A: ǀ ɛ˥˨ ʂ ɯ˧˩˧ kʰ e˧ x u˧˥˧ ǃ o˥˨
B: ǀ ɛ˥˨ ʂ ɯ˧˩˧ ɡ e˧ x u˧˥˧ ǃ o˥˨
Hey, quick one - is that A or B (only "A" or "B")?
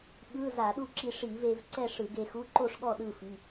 B